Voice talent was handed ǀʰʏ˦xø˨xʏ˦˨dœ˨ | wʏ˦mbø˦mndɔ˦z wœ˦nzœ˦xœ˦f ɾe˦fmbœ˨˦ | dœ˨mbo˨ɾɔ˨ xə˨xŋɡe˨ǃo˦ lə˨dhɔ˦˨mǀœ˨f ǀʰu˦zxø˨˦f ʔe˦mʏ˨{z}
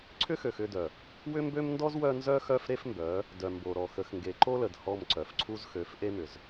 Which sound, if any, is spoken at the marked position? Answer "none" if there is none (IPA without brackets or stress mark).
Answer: z